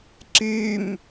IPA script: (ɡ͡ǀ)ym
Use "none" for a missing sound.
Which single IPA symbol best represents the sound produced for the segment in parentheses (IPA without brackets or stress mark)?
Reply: ǀ